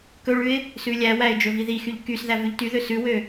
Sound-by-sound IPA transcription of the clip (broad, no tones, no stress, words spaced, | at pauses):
kɵɭʉɪ̯ | sʉlʲæwæɪ̯ d͡ʒɵviðixyʎ kysðæ vʉʎtyðø sʉwø